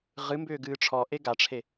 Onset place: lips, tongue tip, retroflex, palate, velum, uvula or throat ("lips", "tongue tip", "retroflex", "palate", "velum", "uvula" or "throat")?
uvula